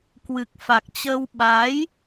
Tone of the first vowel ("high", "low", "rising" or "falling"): low